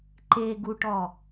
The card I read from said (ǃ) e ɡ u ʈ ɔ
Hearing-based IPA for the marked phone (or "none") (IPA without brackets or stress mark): ǃ